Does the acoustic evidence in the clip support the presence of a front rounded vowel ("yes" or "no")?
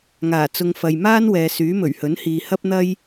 yes